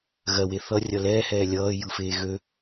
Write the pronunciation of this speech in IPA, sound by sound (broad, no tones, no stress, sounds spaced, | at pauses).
ɣ ɜ w e θ ʌ rʲ ʌ l ɛː h ɛː lʲ ʌː j ɯ f eː ɣ ø